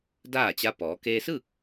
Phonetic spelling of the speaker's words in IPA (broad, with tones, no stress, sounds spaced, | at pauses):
d aː˥˨ t͡ɕ a˧˥ p ɔː˩˧ k eː˧ s ɯː˥˨ k̚